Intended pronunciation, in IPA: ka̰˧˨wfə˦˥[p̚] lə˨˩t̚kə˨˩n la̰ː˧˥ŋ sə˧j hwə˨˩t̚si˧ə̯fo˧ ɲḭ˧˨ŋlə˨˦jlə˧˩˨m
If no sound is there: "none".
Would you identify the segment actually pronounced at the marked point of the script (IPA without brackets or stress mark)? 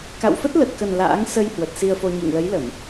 t̚